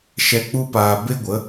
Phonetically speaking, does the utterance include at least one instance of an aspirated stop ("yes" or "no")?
no